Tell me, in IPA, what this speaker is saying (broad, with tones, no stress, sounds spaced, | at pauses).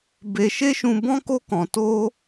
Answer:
b e˧ ʃ e˦ ʃ ũ˧ b ɔ̃˦ k o˦ k ɔ̃˧ t o˦